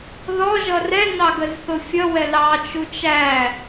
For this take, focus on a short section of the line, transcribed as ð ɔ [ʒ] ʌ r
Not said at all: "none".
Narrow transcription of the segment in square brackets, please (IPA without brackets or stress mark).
ʒ